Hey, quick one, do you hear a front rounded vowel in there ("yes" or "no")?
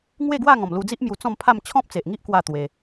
no